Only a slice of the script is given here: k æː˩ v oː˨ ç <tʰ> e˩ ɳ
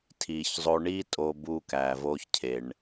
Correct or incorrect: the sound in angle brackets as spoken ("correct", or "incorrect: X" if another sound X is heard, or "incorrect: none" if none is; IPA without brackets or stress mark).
incorrect: cʰ